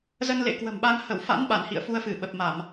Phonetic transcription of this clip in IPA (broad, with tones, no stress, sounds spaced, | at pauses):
z ə˧ n l ḛ˧˨ k w ə̤˨˩ m ɓ a˧ ŋ h ə˧˩ w f a̰˧˥ n ɓ a˧˩ n h ḭ˧˨ ə̯ f u˧ ə̯ f ɨ˧˩ ɓ ə˨˩ p̚ m a˧˩˨ m